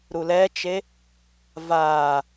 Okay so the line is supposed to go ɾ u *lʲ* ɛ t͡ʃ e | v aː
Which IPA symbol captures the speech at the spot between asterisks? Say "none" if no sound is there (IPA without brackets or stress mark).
l